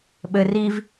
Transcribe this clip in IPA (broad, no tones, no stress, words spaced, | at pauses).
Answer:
ɓɘ riv